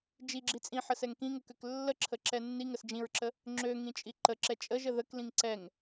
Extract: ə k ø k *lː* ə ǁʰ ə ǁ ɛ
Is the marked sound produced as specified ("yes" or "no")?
yes